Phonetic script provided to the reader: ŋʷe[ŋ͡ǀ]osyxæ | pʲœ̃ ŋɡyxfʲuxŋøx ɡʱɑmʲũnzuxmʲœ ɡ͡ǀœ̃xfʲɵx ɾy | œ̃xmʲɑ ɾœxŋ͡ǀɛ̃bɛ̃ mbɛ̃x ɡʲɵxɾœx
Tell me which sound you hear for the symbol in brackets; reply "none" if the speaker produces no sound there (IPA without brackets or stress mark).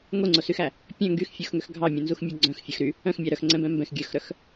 ŋ͡ǀ